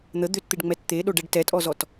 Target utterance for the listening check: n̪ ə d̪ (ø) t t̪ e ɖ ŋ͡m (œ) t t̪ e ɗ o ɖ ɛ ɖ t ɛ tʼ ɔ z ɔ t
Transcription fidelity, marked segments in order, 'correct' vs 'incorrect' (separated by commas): correct, incorrect